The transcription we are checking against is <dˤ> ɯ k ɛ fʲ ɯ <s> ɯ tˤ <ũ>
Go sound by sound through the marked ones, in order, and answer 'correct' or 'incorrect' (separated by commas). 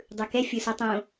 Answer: correct, correct, incorrect